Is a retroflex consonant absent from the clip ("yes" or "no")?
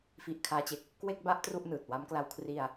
yes